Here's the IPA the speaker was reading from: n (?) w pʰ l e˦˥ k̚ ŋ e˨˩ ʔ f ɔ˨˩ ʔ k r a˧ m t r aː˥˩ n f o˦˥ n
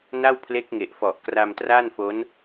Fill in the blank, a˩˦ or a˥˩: a˥˩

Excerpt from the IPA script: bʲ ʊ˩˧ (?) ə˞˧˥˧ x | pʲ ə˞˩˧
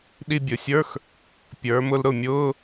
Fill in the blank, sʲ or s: sʲ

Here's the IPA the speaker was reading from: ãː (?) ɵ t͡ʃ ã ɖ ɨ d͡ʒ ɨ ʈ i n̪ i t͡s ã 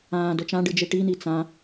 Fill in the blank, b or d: d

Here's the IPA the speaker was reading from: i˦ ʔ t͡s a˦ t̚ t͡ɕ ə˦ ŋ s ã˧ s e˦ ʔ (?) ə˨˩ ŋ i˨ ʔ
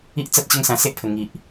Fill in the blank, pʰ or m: pʰ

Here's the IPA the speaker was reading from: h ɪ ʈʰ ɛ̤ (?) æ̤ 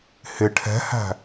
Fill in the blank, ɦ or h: h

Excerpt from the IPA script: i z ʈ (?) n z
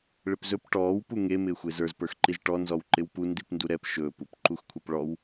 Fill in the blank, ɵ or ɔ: ɔ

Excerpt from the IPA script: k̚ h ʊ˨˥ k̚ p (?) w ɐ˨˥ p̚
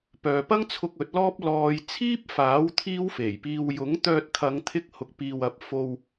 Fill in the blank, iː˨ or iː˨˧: iː˨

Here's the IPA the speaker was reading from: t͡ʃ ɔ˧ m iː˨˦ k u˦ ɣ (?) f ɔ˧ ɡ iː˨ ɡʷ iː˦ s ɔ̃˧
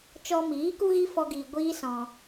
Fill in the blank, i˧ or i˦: i˦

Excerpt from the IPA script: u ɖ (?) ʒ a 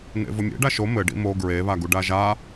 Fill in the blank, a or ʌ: a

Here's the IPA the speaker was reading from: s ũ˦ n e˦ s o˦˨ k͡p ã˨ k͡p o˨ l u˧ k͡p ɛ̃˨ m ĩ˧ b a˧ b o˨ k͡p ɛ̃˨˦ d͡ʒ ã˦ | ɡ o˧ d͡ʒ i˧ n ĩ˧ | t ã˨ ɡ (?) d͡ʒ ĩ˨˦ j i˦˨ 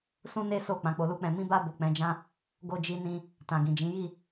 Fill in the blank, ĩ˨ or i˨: ĩ˨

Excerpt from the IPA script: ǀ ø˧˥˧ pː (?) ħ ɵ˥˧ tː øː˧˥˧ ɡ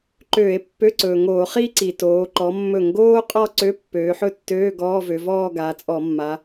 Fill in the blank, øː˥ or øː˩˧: øː˩˧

